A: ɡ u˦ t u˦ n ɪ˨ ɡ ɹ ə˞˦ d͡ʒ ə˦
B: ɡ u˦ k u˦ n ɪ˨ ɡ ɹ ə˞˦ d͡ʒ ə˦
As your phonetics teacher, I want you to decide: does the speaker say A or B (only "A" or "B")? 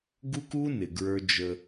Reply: B